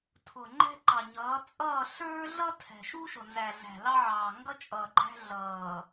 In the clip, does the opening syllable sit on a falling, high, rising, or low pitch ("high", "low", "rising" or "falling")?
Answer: low